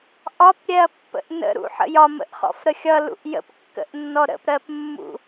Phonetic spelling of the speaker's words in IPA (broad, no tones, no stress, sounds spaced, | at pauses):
ʔ ɒ p ɾʲ ɛ ɐ̯ pː ə̰ ʔ n ə̰ ɾ ṵ ħ ə̰ j ɒ m ə̰ ʔ χ ɔ̰ f ɾ ə xʲ ʌ l ṵ ʔ j ə̰ p kː ə̰ ʔ nː ɔ ɾ ə̰ p ɾ ɜ p mː ṵ